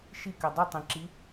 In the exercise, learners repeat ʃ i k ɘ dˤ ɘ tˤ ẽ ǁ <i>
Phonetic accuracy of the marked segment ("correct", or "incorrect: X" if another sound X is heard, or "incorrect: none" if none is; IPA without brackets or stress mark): correct